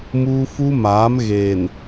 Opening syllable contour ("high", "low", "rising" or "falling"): high